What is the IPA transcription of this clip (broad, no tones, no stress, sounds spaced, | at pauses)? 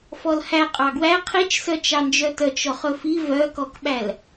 f ɔ l h æ qʼ ɑ ɡ w æ qʰ i t͡ʃ s œ t͡ʃ ɑ n d͡ʒ œ t œ t͡ʃ ɔ χ ɵ f i v œ k ɔ k ɓ æ l